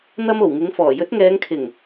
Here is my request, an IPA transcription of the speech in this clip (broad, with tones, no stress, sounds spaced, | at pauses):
n̪ ɐ˧ m o˨˩ w ŋ ɪ˨˥ ŋ f ɔː˨˩ j ɵ˨˥ t̚ ŋ ɛː˨˧ ŋ kʰ ɪ˨˩ ŋ